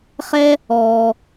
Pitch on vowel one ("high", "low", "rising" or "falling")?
high